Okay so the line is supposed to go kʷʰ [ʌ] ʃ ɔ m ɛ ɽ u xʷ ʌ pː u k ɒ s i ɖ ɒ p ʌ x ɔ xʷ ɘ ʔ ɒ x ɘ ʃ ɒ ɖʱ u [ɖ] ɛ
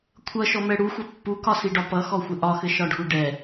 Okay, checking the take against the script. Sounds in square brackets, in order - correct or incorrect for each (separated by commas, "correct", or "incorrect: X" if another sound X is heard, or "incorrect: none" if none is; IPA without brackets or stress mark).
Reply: correct, correct